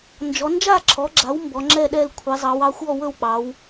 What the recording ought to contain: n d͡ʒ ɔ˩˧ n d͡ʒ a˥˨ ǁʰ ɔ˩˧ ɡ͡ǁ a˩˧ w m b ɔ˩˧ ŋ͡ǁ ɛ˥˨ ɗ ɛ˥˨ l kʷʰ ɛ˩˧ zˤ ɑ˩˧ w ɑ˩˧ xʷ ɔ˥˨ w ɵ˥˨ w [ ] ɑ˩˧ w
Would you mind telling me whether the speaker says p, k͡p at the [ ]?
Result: k͡p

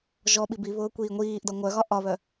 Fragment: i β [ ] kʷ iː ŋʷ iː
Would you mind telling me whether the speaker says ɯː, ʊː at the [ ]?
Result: ʊː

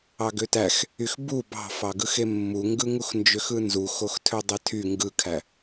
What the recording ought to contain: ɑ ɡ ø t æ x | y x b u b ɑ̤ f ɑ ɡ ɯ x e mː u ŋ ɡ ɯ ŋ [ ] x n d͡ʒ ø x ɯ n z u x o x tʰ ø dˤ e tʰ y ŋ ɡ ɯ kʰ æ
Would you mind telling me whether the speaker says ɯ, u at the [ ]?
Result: u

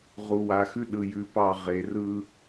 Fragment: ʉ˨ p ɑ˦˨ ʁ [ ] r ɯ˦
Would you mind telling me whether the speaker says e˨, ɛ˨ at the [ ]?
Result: e˨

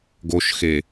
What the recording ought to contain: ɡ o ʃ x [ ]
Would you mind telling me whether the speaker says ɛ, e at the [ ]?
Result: e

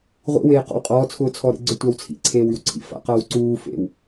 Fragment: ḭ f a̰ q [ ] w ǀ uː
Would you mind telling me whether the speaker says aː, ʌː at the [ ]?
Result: ʌː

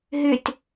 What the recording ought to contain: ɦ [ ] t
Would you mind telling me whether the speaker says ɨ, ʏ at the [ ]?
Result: ʏ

